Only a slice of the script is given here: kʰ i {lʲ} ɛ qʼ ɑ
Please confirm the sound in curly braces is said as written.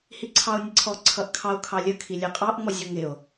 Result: yes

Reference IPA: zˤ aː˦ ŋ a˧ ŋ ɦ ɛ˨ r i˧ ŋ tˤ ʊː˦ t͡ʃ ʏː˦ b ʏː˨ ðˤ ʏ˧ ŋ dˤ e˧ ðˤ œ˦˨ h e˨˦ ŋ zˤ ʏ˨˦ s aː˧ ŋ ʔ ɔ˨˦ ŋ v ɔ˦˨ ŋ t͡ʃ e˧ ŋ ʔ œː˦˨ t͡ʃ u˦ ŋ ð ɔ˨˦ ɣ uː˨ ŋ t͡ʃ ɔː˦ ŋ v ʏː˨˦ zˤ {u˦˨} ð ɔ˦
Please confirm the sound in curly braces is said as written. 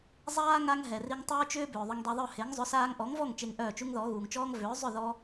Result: no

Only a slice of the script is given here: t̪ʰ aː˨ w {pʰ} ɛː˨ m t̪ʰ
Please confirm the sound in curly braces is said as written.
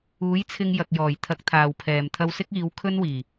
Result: yes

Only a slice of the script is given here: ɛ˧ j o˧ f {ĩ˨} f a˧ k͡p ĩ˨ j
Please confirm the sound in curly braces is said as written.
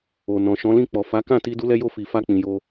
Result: no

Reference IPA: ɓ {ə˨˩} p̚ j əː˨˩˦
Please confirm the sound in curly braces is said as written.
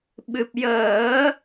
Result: no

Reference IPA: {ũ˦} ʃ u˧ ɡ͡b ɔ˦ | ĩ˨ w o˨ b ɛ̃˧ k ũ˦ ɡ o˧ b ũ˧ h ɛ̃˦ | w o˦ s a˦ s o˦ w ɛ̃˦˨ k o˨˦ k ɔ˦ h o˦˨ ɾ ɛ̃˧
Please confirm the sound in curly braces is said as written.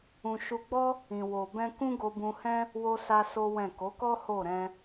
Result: no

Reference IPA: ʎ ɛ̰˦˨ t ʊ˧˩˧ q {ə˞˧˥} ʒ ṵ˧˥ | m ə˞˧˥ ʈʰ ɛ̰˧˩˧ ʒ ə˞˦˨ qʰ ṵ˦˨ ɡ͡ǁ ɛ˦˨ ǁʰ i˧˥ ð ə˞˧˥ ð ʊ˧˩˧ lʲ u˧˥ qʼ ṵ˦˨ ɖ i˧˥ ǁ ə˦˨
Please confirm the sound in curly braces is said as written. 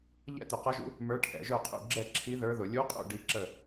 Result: no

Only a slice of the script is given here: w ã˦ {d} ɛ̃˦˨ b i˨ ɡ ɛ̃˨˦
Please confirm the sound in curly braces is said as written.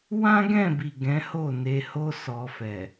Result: no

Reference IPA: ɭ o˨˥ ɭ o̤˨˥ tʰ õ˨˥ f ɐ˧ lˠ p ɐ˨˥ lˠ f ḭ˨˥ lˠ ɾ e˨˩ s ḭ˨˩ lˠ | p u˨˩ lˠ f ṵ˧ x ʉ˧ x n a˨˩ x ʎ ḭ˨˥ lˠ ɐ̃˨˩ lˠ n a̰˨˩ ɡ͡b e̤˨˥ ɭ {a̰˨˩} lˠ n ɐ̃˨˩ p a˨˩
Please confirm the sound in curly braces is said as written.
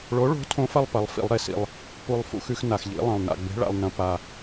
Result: yes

